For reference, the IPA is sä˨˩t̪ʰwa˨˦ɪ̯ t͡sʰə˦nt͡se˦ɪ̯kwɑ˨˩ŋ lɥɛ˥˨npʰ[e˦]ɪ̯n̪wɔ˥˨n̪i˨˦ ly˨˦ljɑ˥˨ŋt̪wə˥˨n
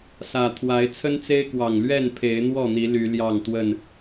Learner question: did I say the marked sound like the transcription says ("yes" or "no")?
no